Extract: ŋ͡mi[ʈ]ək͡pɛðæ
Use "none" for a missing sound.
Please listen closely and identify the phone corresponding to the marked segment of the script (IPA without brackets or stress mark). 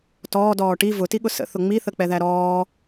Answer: θ